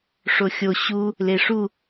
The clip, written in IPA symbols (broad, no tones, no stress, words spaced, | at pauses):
ʂoxʲo ɕu | leʂu